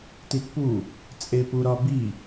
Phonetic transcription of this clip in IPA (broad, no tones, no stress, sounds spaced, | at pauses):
t i t p u | t͡sʼ e p u ɾ ɒ b i